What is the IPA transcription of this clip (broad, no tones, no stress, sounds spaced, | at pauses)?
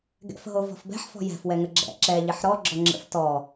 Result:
ɡ ɛ̰ f ɦ o v ɔ̤ f b ɛ̤ ħ f ɔ̤ j ɛ̤ f w ɛ ŋ ə ɡ͡ǁ ɛ̰ ǁ ɛ ʎ ɪ ħ ɾ ɔ ɡ͡ǁ ɔ ŋ͡ǁ ə̰ f t ɔ